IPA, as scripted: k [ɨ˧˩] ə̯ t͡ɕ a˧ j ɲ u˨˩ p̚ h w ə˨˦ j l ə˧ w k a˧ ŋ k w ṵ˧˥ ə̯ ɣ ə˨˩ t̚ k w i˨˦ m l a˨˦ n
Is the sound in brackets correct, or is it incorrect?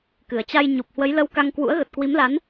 incorrect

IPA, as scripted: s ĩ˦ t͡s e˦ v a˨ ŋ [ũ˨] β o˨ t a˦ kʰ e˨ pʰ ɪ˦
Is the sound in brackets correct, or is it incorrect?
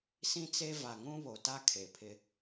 incorrect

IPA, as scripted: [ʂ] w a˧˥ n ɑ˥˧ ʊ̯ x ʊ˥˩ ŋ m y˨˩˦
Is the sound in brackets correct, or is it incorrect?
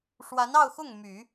correct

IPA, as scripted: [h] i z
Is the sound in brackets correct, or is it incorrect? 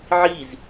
incorrect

